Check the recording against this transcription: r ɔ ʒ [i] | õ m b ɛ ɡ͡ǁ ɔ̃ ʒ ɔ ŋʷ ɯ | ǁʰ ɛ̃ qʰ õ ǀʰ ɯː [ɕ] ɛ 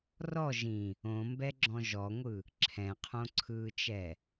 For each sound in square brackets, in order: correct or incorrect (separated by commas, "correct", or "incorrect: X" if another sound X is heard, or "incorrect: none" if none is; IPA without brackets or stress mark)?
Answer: incorrect: ĩ, incorrect: t͡ʃ